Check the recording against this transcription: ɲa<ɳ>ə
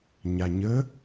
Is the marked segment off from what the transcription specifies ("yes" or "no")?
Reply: yes